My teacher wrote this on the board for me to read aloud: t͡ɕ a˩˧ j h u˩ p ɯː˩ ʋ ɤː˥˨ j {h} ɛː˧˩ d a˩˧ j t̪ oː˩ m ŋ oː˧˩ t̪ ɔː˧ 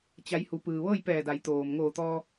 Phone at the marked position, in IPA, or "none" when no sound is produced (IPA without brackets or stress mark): p